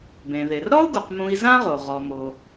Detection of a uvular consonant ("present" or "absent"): present